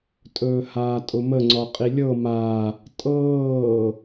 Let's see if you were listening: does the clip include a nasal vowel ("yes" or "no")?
no